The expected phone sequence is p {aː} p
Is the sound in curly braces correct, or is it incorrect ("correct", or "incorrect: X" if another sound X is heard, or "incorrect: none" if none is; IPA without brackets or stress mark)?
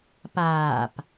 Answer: correct